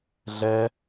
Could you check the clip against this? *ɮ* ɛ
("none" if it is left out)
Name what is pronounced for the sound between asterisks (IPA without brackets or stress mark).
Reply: ɮ